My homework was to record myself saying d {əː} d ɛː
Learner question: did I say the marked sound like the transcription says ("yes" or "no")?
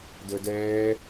yes